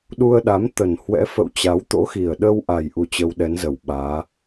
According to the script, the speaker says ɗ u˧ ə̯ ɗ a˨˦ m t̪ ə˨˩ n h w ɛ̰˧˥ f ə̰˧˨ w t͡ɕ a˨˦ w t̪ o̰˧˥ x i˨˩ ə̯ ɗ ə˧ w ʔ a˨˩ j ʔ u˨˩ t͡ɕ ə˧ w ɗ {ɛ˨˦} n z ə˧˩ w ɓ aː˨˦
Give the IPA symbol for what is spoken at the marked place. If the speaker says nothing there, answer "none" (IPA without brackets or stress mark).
ɛ˨˦